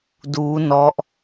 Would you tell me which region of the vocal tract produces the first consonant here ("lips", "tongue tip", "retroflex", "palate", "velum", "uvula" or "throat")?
tongue tip